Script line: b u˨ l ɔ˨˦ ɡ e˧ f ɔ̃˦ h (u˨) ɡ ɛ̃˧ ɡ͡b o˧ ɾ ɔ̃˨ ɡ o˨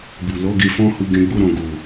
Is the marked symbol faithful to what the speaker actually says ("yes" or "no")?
no